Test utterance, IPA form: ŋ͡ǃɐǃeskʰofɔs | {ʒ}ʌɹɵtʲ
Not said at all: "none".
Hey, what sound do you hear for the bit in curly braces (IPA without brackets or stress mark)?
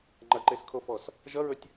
ʒ